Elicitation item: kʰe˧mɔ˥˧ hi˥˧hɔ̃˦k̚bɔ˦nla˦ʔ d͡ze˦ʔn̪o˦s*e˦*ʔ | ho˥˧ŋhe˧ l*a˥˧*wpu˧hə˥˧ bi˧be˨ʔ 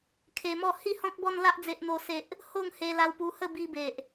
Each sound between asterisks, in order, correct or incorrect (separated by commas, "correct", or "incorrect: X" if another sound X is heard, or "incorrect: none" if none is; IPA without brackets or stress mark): correct, incorrect: a˧